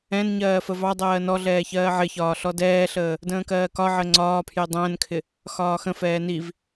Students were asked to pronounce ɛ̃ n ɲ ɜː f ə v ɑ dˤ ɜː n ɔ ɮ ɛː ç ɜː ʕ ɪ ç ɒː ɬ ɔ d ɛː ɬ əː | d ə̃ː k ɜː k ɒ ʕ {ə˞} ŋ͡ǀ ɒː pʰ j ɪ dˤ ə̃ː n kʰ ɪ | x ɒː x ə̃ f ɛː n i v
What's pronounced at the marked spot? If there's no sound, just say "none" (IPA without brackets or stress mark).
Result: ɜ